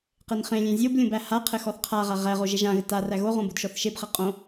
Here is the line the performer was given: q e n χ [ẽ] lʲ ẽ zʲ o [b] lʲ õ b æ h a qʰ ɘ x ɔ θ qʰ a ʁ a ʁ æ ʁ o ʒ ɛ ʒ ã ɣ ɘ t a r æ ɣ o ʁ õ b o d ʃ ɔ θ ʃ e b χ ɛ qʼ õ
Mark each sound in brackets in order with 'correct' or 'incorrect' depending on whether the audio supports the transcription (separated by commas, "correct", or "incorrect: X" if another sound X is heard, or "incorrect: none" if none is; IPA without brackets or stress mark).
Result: correct, correct